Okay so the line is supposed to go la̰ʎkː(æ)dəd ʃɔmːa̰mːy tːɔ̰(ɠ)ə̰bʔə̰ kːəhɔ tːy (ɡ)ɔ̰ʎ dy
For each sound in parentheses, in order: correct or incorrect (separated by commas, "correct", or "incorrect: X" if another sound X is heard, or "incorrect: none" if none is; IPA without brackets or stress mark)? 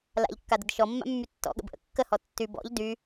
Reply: incorrect: a, correct, incorrect: b